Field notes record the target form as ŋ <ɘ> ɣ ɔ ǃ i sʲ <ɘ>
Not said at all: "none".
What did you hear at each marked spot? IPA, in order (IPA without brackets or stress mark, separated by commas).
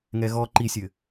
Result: ɛ, ɘ